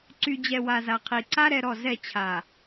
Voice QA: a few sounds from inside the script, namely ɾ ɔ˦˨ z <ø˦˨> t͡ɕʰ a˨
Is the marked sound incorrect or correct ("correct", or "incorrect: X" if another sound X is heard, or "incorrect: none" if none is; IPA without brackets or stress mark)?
incorrect: ɛ˦˨